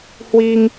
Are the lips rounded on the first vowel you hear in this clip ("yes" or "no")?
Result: no